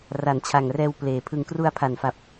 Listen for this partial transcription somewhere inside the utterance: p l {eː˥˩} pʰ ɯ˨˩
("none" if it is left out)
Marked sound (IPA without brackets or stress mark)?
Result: eː˨˩